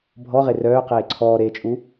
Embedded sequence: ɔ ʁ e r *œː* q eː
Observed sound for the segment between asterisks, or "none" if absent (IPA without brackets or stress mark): œː